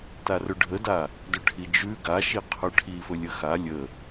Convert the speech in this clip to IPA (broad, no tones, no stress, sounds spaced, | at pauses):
t a r ɵ ɖʱ ə d a | d ɵ ʈʰ i d͡ʒ ʉ ɡ a ʃ i qʰ ɵ ʈʰ i f ɵ lʲ ə x a lʲ ə